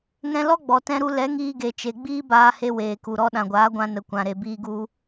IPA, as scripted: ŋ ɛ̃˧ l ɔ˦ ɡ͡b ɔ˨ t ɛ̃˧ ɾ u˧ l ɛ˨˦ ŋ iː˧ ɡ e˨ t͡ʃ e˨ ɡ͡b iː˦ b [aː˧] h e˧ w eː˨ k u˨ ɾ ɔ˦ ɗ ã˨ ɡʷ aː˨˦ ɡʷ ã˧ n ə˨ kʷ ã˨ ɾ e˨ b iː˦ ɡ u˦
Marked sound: correct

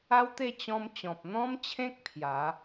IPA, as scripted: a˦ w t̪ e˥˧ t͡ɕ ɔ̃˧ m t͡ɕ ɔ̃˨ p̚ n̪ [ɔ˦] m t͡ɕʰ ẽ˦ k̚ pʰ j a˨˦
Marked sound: incorrect: ɔ̃˦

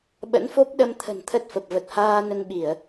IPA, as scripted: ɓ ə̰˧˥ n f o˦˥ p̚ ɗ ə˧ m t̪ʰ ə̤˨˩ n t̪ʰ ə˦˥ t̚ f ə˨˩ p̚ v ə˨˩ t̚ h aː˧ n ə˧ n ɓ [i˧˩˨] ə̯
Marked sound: correct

